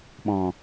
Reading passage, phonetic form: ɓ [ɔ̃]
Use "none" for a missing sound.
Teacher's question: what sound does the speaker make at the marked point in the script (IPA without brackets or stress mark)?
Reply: ɔ̃